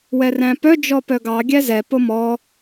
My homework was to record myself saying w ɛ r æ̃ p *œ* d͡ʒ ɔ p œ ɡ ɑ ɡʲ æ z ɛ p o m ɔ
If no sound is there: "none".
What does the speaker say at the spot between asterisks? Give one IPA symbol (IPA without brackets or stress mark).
œ